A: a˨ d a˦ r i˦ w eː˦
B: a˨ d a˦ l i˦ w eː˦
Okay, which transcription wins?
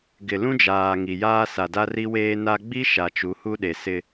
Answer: A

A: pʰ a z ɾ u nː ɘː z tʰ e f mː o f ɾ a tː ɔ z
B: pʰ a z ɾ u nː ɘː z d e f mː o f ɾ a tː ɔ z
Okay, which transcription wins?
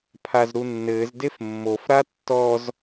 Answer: B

